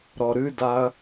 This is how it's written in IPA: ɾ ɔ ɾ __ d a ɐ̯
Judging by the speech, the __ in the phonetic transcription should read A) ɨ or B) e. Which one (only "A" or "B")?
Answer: A